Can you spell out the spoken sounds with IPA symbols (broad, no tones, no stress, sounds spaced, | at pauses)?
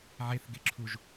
ʕ e θ ɡ e ǁʰ u ʒ